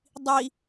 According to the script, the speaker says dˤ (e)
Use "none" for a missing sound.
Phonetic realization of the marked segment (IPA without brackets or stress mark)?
i